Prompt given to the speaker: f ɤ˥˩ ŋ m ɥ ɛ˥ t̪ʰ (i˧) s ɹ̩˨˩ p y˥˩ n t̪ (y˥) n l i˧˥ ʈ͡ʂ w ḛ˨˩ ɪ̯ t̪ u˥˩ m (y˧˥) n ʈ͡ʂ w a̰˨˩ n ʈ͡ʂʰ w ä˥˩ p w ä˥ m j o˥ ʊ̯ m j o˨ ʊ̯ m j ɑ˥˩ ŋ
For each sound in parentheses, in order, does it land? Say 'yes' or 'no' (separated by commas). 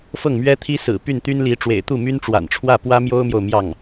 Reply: no, yes, no